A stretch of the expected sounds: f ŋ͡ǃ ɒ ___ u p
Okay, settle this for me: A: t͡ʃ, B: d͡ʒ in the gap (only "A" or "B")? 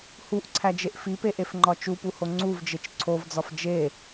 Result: A